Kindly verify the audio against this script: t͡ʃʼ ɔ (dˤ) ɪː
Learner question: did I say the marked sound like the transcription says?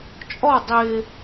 yes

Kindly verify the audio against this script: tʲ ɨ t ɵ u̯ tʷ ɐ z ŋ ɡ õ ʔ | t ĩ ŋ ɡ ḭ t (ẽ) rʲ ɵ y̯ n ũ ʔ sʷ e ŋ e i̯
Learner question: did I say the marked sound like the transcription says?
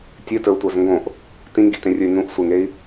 yes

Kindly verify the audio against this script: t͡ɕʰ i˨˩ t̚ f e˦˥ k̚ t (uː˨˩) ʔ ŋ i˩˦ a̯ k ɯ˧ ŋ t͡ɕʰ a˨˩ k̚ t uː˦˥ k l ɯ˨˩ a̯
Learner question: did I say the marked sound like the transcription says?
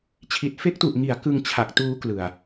no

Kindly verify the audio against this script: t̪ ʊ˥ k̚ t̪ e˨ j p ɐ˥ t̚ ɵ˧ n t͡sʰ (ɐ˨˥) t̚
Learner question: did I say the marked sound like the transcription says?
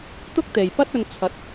yes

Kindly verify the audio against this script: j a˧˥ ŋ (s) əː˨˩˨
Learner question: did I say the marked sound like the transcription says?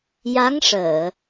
no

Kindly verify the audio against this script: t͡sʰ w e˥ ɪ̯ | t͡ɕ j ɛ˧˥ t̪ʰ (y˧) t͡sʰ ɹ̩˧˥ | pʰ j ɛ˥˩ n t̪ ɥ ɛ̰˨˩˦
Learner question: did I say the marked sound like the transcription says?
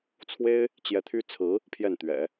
no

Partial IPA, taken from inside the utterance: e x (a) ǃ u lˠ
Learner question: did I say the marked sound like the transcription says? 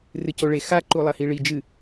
yes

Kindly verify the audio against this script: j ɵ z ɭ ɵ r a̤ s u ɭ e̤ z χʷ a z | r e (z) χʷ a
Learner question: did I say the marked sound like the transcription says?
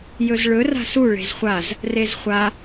yes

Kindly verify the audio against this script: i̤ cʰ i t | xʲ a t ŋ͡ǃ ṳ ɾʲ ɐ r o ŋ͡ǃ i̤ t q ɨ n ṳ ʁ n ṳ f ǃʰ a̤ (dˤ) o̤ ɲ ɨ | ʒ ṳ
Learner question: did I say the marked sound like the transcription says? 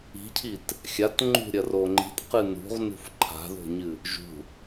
no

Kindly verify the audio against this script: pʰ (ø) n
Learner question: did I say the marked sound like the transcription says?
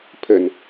no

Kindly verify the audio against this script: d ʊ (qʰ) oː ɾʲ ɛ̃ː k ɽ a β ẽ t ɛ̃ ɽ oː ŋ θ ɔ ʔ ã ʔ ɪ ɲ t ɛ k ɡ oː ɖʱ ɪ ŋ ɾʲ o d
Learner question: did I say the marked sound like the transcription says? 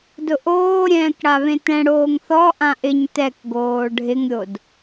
no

